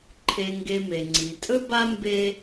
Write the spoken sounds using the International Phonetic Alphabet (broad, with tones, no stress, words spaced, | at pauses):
ǃʰe˨ŋɡe˨me˩ ŋ͡ǀi˩tʼɵ˥ba˥ mbe˦